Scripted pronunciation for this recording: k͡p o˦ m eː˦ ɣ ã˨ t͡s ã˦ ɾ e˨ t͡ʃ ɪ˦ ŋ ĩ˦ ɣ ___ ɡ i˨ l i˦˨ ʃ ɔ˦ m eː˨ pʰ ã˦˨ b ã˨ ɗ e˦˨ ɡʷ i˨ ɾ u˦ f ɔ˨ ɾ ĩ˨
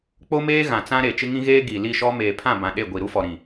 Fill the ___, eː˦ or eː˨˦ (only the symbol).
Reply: eː˦